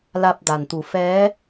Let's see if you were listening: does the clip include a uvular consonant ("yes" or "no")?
no